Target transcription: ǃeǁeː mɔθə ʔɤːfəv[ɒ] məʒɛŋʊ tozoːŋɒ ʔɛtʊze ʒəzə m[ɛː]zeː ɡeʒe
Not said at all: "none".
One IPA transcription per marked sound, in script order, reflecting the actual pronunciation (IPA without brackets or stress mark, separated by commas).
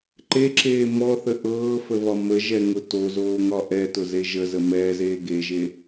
ɒ, ɛː